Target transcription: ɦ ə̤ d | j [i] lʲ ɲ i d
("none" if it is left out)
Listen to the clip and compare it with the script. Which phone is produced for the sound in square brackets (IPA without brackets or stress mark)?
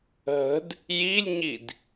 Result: i